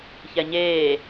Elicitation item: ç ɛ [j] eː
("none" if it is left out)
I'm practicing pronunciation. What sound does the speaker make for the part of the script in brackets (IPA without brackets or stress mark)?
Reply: ɲ